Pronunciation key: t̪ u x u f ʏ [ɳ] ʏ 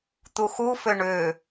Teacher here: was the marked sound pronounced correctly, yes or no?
yes